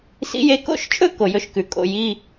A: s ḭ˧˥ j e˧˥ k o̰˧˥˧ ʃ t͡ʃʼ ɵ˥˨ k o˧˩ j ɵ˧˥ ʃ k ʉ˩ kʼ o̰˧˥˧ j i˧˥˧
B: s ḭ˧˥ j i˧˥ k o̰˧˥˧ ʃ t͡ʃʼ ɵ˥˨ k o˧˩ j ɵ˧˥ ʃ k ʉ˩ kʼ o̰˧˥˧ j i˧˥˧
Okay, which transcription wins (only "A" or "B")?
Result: A